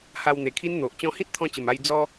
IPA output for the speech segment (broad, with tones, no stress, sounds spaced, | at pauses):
h a˧ w n̪ e˨˩ kʰ i˦ n n̪ o˨ ʔ t͡ɕ ɔ̃˧ h ĩ˦ t̚ t̪ʰ ɔ̃˧ t͡ɕ ə˨˩ m a˧ j d͡z ɔ˦